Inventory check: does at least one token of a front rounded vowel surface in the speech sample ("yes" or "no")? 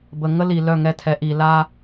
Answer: yes